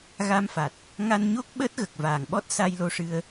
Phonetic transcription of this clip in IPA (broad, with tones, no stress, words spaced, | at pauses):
ɣa˧mfa˨˩t̚ | ŋa˧nɲo˦˥k̚ ɓəː˦˥t̚ɣə˨˩k̚ vaː˨˩ŋɓɔ˦˥t̚sa˧j lo˧ʂɨ˧ə̯